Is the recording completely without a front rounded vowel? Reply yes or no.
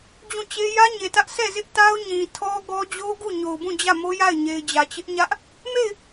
yes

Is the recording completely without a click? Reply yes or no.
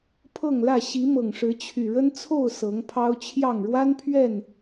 yes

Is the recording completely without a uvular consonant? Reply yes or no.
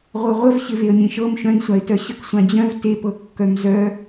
no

